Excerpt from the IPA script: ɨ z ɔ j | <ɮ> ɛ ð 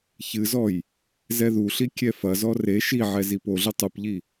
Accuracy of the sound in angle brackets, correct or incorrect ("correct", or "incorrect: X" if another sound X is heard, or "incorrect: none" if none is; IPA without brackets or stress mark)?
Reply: incorrect: z